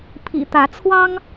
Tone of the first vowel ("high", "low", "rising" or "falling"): low